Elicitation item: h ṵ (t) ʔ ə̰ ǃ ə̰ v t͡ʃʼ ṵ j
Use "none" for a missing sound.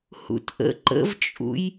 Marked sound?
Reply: t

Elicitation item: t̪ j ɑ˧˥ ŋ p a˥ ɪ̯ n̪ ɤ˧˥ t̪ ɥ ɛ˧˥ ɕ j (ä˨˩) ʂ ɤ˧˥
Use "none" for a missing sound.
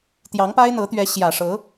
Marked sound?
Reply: ä˨˩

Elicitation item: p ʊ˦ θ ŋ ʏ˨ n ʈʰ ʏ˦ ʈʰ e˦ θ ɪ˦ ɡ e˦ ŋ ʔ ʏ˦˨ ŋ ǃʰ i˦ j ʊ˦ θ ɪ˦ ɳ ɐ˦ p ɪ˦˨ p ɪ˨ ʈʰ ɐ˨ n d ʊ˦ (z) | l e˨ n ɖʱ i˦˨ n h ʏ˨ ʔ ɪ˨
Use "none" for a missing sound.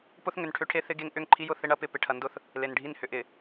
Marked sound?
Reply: θ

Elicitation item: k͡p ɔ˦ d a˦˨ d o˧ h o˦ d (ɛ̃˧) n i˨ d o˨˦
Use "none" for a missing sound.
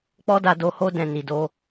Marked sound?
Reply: ɛ̃˦˨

